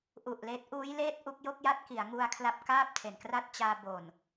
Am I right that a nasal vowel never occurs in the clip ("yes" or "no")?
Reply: yes